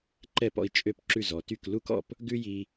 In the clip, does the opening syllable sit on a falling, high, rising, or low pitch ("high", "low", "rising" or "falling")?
falling